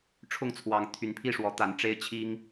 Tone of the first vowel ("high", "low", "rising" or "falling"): falling